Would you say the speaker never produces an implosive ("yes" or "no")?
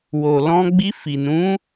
yes